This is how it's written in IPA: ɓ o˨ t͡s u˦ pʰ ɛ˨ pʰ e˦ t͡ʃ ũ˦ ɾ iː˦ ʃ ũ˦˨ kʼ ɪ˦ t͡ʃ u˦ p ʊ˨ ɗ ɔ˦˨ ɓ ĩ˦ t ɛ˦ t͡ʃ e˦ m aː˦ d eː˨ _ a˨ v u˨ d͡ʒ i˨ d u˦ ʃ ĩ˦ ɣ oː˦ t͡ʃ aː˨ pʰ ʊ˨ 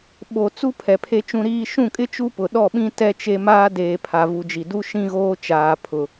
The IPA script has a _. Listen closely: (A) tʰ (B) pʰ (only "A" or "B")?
B